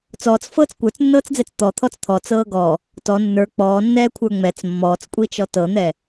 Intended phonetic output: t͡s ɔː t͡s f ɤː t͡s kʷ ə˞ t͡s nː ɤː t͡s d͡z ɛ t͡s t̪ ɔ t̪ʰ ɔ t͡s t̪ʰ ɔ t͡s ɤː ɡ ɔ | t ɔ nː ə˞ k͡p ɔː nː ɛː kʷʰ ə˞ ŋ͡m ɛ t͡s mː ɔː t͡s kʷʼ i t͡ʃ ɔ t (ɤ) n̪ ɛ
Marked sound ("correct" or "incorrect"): correct